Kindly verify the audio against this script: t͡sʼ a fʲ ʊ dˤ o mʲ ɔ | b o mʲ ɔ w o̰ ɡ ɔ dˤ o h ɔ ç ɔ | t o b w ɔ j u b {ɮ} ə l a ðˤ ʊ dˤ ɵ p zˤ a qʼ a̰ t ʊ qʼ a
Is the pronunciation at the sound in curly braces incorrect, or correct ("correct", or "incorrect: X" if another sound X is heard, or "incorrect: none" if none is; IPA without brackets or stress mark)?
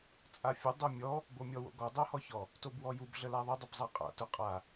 correct